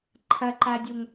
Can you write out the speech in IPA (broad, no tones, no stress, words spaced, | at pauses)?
ǃʰɐǃadʲoŋ